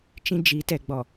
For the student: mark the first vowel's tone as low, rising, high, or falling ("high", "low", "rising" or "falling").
high